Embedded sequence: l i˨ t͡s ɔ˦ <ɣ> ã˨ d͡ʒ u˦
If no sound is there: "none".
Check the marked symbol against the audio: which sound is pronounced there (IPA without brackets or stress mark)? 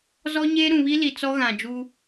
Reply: ɣ